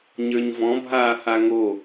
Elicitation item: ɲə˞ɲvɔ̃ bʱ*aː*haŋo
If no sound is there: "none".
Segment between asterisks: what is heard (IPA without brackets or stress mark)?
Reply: aː